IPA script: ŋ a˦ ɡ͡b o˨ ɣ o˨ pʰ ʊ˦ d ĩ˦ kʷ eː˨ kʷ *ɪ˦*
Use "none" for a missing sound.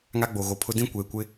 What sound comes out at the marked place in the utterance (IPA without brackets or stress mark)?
ɪ˦